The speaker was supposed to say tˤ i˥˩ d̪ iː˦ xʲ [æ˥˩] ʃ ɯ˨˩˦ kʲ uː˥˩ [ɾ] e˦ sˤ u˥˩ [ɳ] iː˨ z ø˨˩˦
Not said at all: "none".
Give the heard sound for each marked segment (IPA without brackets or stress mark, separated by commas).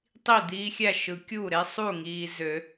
æ˥˩, ɾ, ŋ